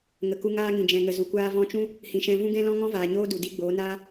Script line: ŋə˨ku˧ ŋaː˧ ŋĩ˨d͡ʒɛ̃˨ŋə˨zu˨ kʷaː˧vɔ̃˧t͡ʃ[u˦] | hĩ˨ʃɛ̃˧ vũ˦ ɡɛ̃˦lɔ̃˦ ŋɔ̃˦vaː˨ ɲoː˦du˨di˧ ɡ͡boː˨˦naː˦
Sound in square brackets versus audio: incorrect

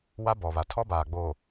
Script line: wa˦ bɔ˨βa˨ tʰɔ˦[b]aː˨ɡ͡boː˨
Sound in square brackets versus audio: correct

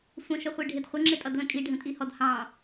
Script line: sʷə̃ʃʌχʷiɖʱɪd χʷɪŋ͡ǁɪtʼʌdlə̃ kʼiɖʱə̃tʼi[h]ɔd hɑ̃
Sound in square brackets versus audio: correct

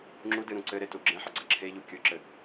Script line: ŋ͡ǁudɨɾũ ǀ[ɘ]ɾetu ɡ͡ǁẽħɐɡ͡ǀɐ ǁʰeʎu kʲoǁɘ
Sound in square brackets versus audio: correct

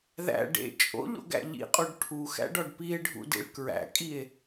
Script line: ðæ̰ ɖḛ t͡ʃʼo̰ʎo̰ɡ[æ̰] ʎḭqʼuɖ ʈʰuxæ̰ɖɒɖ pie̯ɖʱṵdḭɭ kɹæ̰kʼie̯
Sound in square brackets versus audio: correct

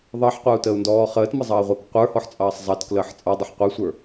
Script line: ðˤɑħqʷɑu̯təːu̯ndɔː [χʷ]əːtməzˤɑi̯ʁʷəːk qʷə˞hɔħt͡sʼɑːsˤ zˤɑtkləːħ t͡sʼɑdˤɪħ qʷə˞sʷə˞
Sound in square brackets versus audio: incorrect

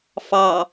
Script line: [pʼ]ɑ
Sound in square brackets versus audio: incorrect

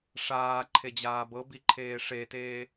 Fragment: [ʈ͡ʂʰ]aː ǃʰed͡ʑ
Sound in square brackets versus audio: incorrect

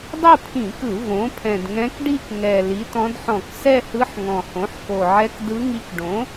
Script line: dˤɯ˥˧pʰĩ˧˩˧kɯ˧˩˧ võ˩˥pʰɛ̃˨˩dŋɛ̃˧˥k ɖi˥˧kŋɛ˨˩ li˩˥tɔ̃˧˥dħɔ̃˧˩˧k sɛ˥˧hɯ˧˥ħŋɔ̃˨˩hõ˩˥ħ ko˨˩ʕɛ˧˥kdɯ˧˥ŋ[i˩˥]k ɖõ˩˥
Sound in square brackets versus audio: incorrect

